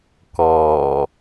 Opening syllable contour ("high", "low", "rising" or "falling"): low